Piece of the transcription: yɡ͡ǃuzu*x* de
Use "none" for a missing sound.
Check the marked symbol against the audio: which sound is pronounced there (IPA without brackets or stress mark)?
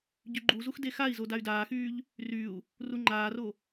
x